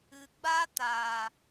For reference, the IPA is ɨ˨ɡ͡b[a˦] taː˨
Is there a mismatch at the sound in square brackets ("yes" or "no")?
no